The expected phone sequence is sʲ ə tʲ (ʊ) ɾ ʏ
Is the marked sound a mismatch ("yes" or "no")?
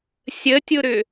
no